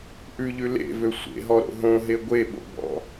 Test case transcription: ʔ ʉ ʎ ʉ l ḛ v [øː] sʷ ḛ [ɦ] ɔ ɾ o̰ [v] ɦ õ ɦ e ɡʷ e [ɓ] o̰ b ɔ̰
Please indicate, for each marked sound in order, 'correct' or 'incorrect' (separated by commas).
incorrect, correct, incorrect, correct